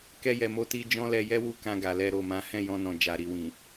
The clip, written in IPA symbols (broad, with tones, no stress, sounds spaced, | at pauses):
k ɛ˧ j ɛ˨ m o˧ t i˧ d͡ʒ ɔ̃˦ l ɛ˧ j ɛ˦ w u˧ k ã˧ ɡ a˨ l ɛ˧ ɾ o˨ m ã˨˦ h ɛ̃˦˨ j ɔ̃˧ n ɔ̃˨ d͡ʒ a˨ ɾ i˨ w ĩ˨